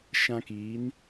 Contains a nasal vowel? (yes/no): yes